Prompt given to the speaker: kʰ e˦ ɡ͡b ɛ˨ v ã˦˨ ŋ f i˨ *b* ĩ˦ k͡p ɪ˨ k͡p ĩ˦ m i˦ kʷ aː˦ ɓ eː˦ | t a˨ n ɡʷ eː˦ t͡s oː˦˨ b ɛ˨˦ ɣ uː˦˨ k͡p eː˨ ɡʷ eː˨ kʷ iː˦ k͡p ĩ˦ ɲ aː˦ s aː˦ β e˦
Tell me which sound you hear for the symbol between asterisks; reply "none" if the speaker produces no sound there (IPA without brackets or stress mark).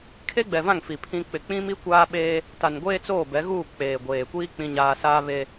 pʰ